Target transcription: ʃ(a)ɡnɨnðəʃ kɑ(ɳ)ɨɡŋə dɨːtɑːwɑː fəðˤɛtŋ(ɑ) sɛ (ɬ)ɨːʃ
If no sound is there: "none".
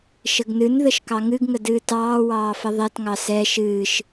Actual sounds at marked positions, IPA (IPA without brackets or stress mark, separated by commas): ə, ŋ, ɑ, ʃ